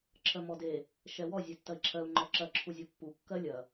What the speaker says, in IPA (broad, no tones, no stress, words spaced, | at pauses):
ǁʰɜmɔde | ʃɛwɔ zʲɛtːɐi̯ǁʰɜu̯ ŋ͡ǃɔǁɐ ǁʰuzʲɔpːu kːɜlʲɐ